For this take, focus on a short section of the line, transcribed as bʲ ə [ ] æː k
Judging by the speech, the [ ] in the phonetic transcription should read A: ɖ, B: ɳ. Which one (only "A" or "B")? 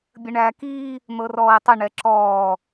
B